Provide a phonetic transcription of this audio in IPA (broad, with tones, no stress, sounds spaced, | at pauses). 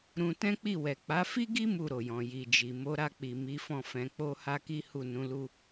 ɾ ũ˧ t ɛ̃˦ k͡p i˦˨ w ɛ˨ k͡p a˨˦ f i˦ ɡ i˦ m u˦˨ ɾ o˨ j ɔ̃˨ j i˨ d͡ʒ i˨ m o˨˦ ɾ a˦˨ k͡p i˨ m i˨˦ f ɔ̃˦˨ f ɛ̃˧ k͡p o˦ h a˦ k i˦ h u˦˨ n ũ˨˦ l u˦